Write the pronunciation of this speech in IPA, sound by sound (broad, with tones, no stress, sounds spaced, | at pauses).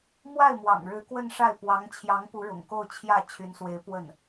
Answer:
m w a˥˩ ɪ̯ m w ɑ̰˨˩ ŋ ɻ ɻ̩˧˥ k w ə˥˧ n ʂ a˥˩ ɪ̯ p w ɑ˧˥ ŋ t͡ɕʰ j ɑ˧˥ ŋ p u˧˥ ɻ ʊ̰˨˩ ŋ k o˥˧ ʊ̯ t͡ɕʰ j ä˥˩ t͡ɕʰ y˧˥ n s w e˧˥ ɪ̯ p w ə˥˩ n